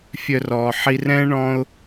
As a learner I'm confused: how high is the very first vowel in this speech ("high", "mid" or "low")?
mid